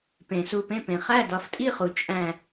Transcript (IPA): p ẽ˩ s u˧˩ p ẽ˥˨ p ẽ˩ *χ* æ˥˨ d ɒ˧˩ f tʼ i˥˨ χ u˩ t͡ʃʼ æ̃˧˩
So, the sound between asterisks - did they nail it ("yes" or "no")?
yes